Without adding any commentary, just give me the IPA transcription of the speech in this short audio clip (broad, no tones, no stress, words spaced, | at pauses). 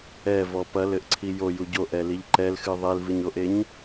ɛvɔ pɐlɘʔǀʰi joju ɟoʔɛliʎ ǃɛlxɨ ðˤelvɨɲoʔeɲ